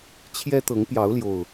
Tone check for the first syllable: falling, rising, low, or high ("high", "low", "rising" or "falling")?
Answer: high